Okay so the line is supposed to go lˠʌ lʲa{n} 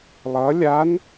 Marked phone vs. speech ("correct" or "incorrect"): correct